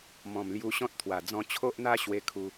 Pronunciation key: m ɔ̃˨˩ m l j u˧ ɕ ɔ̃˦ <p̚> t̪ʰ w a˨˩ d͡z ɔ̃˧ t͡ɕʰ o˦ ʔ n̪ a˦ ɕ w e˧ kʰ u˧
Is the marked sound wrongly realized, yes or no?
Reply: yes